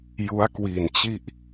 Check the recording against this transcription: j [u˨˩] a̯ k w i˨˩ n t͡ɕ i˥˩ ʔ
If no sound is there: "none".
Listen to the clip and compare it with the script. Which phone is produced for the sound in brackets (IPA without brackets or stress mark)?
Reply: u˦˥